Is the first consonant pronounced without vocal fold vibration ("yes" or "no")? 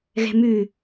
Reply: no